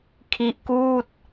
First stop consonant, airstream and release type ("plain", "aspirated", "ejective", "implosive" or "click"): aspirated